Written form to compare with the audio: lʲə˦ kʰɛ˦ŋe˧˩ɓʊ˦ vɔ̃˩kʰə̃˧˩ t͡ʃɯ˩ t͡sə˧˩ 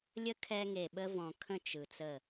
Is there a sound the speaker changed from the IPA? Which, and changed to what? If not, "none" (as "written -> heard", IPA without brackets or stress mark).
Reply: ʊ˦ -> ə˦